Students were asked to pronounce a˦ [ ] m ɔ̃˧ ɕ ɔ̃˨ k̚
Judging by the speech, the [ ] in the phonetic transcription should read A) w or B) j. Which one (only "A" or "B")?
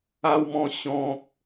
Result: A